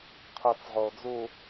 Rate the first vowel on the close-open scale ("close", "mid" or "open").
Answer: mid